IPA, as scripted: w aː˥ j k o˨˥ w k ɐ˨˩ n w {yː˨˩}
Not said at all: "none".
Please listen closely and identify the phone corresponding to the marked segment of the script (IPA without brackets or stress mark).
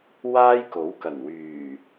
yː˨˩